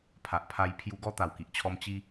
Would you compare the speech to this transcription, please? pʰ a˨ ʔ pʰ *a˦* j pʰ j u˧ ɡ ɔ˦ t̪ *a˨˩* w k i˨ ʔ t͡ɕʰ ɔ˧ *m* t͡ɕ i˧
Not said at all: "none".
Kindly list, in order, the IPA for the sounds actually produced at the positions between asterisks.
a˧, a˨˩, m

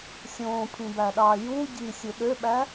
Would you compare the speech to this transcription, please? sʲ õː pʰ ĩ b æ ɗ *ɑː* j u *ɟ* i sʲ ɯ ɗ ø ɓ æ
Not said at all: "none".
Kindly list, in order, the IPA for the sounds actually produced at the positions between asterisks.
ɑː, ɟ

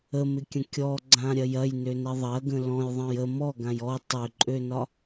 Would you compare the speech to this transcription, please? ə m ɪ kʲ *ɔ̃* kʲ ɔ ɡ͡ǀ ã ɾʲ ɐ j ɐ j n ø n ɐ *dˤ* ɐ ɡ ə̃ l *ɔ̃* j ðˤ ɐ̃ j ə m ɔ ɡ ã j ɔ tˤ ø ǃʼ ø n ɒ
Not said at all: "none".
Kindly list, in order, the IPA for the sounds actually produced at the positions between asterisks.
ə̃, ðˤ, ɔ̃

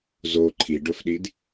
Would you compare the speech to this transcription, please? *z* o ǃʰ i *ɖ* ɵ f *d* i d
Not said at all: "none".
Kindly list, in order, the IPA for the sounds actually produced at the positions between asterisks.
z, ɖ, ɗ

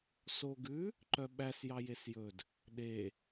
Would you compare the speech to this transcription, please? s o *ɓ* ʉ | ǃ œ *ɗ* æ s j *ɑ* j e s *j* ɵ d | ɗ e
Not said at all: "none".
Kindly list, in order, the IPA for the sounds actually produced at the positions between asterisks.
ɡ, ɓ, ɑ, j

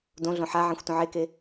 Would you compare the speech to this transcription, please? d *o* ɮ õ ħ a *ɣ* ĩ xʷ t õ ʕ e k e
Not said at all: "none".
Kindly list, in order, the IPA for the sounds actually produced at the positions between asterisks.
õ, ʕ

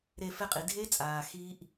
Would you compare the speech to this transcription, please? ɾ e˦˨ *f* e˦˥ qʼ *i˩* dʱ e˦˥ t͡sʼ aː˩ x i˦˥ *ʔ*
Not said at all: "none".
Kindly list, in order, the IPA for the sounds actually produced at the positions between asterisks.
f, i˩, ʔ

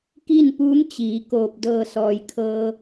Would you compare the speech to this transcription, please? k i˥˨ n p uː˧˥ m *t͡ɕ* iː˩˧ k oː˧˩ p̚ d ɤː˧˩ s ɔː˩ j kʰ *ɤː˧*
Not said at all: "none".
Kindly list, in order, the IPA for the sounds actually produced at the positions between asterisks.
t͡ɕ, ɤː˧

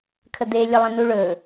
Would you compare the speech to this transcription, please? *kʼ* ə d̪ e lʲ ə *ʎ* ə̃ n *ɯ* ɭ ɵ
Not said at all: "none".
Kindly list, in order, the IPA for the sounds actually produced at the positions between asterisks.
kʰ, lˠ, u

